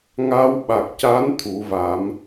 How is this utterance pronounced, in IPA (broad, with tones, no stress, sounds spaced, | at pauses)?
ŋ a˧ w ɓ a˨˩ k̚ c a˧˥ n t̪ʰ u˨˩˦ v a˨˩˦ m